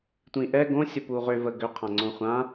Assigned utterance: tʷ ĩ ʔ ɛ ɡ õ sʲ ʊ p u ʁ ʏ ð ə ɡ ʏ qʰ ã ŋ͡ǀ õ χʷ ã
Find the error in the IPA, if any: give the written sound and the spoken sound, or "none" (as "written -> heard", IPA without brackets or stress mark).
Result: ð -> v